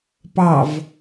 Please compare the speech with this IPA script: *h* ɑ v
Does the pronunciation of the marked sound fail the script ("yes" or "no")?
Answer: yes